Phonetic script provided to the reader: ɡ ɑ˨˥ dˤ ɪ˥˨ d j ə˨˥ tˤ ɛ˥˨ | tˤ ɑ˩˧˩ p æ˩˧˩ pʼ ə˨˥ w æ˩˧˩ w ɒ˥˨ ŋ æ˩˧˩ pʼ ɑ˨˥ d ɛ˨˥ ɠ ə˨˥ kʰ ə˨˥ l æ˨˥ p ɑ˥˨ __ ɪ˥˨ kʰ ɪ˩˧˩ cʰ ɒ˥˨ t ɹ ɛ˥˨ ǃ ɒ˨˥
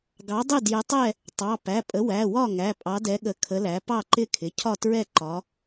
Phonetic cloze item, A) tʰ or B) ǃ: B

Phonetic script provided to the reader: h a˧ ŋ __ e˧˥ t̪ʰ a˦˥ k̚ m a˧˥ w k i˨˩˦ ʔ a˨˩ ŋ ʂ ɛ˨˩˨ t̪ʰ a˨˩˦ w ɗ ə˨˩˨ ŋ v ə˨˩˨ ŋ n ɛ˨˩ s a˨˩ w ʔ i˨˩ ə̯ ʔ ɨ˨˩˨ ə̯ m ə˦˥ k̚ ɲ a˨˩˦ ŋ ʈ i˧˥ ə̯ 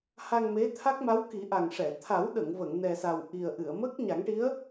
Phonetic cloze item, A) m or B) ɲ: A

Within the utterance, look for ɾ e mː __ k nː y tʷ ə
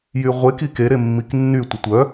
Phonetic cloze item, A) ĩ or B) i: B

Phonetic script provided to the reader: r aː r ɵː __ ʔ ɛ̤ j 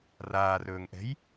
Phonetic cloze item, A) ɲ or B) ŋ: B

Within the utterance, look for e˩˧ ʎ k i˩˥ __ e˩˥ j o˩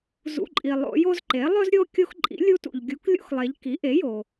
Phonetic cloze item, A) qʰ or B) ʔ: B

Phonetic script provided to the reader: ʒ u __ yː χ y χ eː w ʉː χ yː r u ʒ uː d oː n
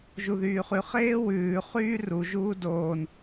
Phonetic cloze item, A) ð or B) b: A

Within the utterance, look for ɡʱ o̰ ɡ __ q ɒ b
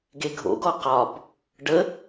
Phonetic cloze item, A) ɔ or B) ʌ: A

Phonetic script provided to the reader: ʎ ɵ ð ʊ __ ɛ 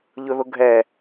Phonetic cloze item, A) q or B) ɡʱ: B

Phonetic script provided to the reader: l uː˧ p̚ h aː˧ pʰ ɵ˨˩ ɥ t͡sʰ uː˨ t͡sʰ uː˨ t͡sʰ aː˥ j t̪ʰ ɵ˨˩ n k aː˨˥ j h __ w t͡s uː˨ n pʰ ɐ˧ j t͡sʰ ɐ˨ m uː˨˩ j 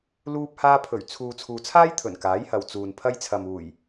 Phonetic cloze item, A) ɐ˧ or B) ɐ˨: B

